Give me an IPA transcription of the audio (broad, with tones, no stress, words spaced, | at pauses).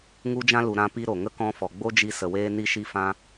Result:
ŋu˧d͡ʒã˧lu˨ ɾã˧pi˧ ɾo˨ŋə˦ kɔ̃˧fɔ˨ɡ͡bo˦d͡ʒi˧ sə˨weː˧ ni˧ʃi˧fã˧